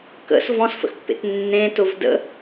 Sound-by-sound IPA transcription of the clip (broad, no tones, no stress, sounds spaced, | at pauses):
k ə̰ s v ɔ̃ s f ə̰ x pː ḛ t nː ẽ t ʊ v d ə̰